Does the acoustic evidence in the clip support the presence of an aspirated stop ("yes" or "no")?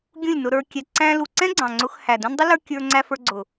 no